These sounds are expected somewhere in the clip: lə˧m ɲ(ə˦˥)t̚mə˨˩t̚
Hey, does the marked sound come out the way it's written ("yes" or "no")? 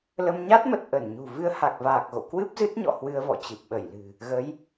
no